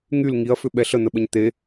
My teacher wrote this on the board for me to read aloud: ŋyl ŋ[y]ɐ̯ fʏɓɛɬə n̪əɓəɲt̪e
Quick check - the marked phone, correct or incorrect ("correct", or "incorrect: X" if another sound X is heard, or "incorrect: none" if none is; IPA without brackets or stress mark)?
incorrect: i